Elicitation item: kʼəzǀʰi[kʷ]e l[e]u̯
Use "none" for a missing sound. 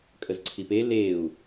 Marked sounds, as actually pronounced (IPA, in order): p, e

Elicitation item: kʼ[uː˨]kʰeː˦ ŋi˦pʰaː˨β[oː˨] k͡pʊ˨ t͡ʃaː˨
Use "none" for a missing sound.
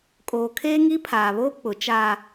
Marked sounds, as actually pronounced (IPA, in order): oː˨, oː˦

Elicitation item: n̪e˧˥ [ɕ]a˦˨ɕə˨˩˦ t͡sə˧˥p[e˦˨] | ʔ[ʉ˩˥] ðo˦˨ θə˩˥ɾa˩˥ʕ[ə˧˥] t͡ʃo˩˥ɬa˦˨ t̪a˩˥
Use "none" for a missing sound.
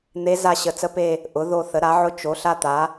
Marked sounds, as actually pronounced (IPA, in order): z, e˦˨, ʊ˩˥, ʊ˧˥

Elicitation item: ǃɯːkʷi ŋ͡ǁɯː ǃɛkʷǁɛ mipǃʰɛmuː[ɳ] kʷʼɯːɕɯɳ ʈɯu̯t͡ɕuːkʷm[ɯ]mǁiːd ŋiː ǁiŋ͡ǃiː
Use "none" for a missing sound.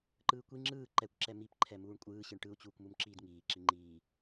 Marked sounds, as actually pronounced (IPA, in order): ɳ, u

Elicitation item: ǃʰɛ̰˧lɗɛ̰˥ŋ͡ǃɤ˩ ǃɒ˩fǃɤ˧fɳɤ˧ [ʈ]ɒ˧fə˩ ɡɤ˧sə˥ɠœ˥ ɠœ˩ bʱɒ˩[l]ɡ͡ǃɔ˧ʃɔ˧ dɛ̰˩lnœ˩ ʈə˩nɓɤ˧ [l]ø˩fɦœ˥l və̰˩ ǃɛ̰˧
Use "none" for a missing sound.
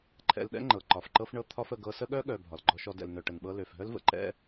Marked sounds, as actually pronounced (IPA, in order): t̪ʰ, l, l

